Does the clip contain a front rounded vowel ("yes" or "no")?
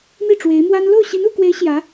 no